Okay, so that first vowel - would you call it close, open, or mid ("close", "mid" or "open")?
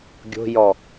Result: mid